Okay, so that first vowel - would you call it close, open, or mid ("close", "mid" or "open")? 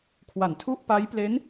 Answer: open